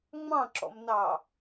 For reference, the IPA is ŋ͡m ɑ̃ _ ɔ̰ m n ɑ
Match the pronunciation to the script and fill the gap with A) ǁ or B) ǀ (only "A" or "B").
A